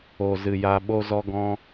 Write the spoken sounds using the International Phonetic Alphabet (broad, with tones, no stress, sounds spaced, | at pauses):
o˨ z ɨ˨ j a˧ ɓ o˧ z ɔ˧ ɡ ɔ̃˧